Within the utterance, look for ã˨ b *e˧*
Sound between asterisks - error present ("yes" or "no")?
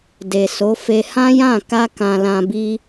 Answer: yes